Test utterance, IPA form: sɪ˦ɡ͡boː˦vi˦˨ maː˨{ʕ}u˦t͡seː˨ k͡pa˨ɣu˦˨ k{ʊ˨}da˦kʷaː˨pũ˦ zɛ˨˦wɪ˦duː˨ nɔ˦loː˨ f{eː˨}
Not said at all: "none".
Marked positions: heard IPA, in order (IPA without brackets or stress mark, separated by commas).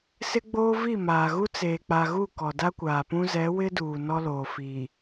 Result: ɣ, ɔ˨, iː˨